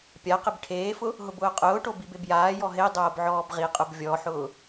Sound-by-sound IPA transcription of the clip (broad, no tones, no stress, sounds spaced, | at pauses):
pʲ a q ɪ b ʈʰ eː f ʊ | ɦ ʊ b ʊː qʼ ʊː ʈ o b i b e b j aː j ɔ ɦ e dˤ oː b ʕ ɔː b ʁ i qʼ ʊ b vʲ ɔ ħ ʊː